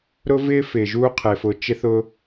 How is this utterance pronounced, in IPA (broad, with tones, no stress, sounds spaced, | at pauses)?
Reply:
ɾ ʊː˦ v ɪː˦ f ɪː˨ ʒ uː˦ qʰ e˨ f ʊ˨˦ t͡ʃ ɪ˦ θ ʊ˦